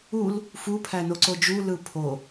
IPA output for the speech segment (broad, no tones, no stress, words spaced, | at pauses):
ul | fu pʰænoǀod͡ʒu lɯpʰo